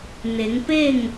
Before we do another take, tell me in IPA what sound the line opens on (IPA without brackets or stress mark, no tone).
n